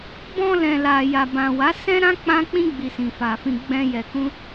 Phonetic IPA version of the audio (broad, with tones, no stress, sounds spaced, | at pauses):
b ɔ̃˧ l ɛ̃˨ l a˨ j a˨ b ã˨ w a˨˦ s ɛ̃˦ ɾ ã˦ k͡p ã˦ k͡p ĩ˦ ɡ͡b i˧ s ĩ˨ f a˨ f ĩ˧ ɡ͡b ɛ̃˧ j ɛ˨ k ũ˧